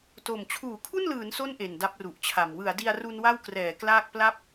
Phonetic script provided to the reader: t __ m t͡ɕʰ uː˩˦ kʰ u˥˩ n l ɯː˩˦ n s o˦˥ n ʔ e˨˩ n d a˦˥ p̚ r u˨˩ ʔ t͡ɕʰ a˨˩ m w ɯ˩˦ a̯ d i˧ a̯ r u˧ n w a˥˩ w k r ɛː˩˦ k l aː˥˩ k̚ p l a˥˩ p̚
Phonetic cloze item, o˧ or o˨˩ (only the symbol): o˨˩